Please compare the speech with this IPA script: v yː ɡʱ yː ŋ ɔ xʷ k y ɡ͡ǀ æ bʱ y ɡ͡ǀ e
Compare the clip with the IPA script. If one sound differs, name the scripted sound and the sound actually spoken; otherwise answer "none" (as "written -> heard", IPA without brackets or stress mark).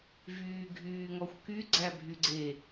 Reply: none